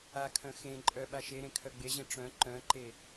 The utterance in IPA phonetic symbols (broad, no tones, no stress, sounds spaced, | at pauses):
a kʰ œ̃ x ẽ ǃʼ œ ɓ a ʃ e ɾ ẽ kʰ œ ɡ͡b e ʑ ẽ ʈ͡ʂ œ̃ ǃ œ̃ ǃ e